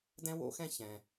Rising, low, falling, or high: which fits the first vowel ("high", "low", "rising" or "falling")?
high